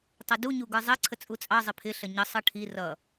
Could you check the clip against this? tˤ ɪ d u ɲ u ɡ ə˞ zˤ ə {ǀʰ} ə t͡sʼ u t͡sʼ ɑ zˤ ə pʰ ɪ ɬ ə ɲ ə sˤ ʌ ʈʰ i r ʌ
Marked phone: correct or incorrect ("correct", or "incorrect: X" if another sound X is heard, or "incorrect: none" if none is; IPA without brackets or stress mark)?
correct